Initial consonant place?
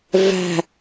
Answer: labial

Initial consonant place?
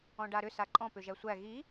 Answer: retroflex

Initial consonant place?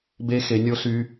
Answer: labial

